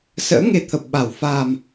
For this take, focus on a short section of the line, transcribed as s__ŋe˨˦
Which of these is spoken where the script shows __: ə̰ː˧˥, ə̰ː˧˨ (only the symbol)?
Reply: ə̰ː˧˥